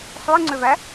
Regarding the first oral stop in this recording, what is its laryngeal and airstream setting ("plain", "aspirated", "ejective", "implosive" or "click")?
click